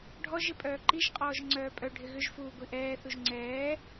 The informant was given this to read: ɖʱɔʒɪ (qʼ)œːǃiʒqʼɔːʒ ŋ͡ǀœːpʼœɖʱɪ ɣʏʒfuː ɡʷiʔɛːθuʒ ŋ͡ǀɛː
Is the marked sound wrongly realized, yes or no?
yes